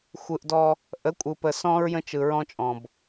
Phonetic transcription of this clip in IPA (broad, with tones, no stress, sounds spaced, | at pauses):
xʷ ɯ˨ ʔ d ɔ˦ | ʔ ə˨˦ kʷʼ ɯ˨ p ə˨ s ɔ̃˦ ɹ j ə̃˦ t͡ʃ ɯ˨ ɹ ɔ̃˦ t͡ʃʼ ɔ̃˨ b